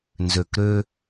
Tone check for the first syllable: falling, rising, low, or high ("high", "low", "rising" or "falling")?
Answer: low